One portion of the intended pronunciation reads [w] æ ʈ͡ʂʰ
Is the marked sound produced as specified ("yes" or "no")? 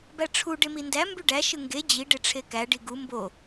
no